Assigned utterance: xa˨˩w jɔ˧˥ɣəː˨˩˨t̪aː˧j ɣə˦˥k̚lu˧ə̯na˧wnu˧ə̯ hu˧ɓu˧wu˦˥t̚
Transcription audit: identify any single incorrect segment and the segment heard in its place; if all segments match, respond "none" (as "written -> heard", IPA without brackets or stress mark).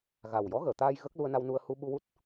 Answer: x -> ɣ